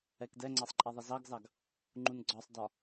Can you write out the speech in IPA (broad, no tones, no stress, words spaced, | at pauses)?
ɛkdɛŋ͡ǀɑsˤ ǃʼæðˤʌzɑɡzɑɡ | ŋ͡ǃunɡ͡ǀɒsˤdɒ